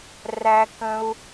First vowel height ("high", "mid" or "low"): low